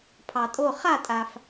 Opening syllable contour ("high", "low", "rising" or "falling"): low